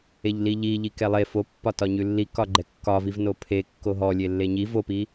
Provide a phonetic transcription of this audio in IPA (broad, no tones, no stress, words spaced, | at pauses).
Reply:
eʎliʎiʎi kɛlˠe fopːɒtɒ ɲʉlːikɒ ɡ͡ǃɛkːɒviv nopʰe kːoɦɔlʲe lːeɲi vopi